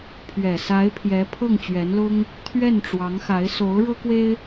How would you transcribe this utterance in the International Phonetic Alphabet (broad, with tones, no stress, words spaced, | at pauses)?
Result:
pʰɥɛ˨˩sa˧˥ɪ̯pʰjɛ˧˥ pʰɤ˥˩ŋt͡ɕɥɛ˧˥nlʊ˥ŋ | t̪ʰɥɛ˥˩n ʈ͡ʂwɑ˧˥ŋxa˧˥ɪ̯ so˧˥ʊ̯ɻɤ˥kwe˥ɪ̯